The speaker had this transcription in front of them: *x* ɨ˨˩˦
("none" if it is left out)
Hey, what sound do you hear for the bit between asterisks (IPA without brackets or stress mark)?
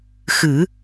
x